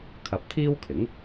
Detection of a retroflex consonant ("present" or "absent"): absent